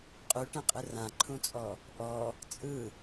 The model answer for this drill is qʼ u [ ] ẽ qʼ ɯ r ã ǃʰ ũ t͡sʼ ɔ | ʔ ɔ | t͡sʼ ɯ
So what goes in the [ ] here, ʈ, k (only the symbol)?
ʈ